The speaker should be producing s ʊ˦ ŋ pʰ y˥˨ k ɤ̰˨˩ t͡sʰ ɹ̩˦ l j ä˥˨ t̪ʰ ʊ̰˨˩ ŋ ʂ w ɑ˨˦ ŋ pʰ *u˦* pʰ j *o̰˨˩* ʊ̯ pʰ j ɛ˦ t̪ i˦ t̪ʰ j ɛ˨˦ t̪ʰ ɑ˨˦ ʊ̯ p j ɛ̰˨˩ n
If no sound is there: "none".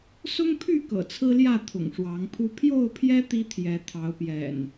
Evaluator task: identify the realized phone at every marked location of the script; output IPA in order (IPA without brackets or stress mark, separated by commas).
u˦, o˥˨